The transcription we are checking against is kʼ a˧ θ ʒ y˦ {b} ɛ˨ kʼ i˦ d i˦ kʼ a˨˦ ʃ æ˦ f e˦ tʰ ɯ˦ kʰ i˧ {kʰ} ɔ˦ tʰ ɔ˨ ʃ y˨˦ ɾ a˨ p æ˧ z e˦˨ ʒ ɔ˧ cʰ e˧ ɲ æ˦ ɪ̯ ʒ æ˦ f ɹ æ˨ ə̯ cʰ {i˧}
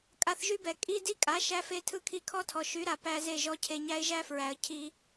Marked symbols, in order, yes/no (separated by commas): yes, yes, yes